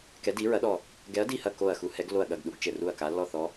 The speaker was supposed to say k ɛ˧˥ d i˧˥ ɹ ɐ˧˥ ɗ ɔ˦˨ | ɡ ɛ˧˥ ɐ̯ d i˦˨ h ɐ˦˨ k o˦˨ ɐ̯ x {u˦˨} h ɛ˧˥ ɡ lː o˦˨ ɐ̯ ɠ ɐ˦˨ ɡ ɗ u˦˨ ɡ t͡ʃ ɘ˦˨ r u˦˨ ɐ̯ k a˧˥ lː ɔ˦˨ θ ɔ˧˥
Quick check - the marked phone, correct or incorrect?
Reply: incorrect